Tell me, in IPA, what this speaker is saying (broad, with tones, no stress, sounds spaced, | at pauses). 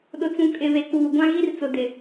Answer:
ɗ ʊ˨ t͡s ũ˨ kʼ ɪ˨ β e˨ k͡p uː˨ ɡʷ ã˦ ɣ i˦ r t͡s ʊ˨ d ɪ˨